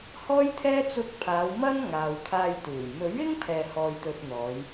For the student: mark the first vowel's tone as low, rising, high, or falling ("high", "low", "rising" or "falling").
high